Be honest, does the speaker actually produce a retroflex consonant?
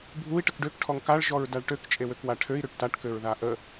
yes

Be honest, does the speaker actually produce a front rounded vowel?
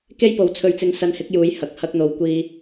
no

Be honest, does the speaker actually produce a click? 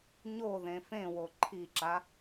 yes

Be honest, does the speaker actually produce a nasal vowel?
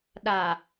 no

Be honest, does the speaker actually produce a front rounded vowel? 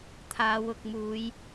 no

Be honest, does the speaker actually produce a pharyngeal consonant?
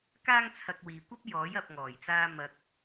no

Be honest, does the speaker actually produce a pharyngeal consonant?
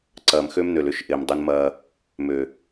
no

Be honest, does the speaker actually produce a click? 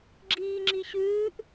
yes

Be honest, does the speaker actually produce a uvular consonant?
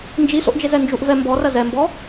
no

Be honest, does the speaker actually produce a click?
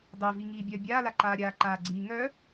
yes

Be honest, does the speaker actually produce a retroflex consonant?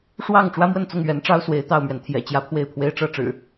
yes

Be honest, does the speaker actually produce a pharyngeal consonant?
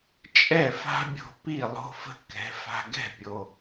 no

